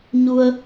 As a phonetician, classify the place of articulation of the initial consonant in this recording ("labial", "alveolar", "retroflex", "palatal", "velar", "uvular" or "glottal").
palatal